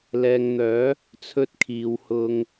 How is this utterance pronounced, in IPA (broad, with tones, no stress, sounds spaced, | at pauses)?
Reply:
l ɛː˨ ŋ n̪ œː˨˧ | t͡sʰ ɵ˧ t̚ kʰ iː˨ w h ʊ˨ ŋ